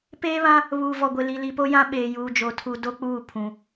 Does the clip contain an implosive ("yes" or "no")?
yes